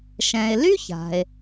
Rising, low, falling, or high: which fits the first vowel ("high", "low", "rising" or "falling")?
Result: low